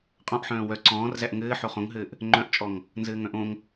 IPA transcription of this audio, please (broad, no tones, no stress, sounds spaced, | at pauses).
qʼ ɔ̃ ʔ ħ œ̃ː w œ ǀ ɔ̃ː r z æ ʔ ŋ ɘː ħ o χ õ ŋ ɦ ɘː ʔ | ŋ͡ǃ œ̃ ʔ t͡ʃʼ ɔ ŋ | n z ɘː ŋ œ̃ ʔ õ ŋ